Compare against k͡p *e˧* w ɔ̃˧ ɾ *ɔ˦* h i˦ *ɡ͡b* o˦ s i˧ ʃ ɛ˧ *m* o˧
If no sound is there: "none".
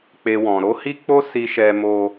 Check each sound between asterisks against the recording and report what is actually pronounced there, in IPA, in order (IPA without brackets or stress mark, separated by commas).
e˦, o˦, k͡p, m